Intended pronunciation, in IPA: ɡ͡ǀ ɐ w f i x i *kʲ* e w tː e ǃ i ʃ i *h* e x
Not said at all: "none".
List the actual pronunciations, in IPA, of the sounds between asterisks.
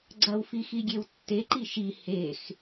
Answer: ɡʲ, h

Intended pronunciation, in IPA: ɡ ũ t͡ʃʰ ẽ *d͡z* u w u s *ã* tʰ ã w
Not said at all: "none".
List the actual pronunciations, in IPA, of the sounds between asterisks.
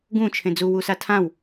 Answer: d͡z, a

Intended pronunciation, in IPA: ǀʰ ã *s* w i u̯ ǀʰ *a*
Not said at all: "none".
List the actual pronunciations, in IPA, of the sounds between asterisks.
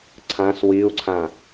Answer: s, ã

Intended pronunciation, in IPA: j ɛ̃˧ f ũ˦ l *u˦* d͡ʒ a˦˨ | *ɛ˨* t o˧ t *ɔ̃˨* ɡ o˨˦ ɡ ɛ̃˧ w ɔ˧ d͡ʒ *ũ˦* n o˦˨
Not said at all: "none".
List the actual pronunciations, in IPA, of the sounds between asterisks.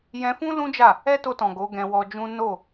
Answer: ũ˦, ɛ˦, ɔ̃˨, ũ˦

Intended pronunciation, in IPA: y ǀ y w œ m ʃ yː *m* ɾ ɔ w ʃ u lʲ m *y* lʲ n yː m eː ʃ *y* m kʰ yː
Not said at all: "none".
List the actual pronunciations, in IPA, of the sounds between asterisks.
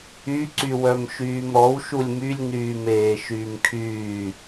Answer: m, y, yː

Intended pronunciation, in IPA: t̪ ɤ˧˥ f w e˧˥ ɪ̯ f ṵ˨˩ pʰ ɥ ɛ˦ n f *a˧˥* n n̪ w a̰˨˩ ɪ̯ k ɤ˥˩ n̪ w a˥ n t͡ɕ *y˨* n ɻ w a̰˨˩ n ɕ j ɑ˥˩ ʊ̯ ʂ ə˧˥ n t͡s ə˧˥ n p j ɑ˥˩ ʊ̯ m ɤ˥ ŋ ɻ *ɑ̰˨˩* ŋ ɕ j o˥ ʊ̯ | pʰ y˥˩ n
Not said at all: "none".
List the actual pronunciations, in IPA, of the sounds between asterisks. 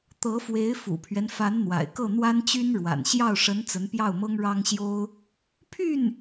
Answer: a˧˥, y˥, ɑ˥

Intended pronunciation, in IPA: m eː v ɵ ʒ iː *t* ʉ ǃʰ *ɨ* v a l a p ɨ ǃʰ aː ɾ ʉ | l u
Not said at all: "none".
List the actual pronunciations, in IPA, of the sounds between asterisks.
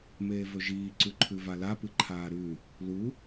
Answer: ǀ, ʉ

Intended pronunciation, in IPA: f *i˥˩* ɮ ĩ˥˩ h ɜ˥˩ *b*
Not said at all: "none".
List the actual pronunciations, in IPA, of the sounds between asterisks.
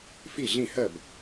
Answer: i˥˩, b

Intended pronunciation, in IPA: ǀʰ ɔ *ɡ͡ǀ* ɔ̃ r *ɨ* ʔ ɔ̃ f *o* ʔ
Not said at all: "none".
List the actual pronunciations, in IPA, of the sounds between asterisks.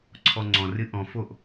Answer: ŋ͡ǀ, ɨ, o

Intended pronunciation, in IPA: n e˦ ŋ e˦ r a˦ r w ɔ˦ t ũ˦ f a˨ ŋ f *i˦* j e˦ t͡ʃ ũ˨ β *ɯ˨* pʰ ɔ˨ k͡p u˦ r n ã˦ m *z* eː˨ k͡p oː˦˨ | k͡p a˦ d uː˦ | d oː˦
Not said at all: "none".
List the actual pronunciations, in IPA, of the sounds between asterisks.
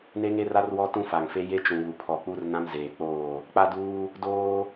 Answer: e˦, u˨, z

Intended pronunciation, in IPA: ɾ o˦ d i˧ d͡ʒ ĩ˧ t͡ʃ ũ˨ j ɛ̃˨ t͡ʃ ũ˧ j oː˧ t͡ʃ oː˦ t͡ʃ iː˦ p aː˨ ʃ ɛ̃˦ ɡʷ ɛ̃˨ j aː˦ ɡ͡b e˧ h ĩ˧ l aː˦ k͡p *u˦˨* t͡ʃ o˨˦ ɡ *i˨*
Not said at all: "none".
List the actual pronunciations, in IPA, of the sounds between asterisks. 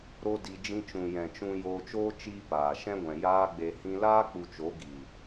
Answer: u˧, i˨

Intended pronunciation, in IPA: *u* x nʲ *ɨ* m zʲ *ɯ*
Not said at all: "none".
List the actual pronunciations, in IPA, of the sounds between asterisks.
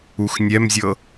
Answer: u, ɛ, ɤ

